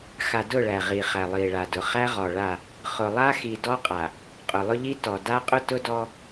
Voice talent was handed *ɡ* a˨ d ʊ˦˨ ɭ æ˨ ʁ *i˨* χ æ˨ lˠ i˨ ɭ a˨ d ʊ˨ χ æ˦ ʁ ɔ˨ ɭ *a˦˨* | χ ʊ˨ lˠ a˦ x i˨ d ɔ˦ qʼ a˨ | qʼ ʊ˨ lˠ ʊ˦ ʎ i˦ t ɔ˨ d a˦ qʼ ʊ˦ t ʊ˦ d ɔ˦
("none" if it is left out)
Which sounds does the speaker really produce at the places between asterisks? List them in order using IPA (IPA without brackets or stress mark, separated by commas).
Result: x, i˨, a˦˨